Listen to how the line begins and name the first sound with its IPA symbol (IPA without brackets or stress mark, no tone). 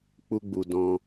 k͡p